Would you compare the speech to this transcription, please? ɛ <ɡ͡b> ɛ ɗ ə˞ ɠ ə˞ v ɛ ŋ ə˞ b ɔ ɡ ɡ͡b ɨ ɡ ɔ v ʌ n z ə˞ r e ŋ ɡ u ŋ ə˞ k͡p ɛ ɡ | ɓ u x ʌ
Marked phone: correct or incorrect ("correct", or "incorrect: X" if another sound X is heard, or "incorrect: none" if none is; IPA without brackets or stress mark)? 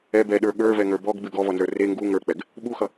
incorrect: b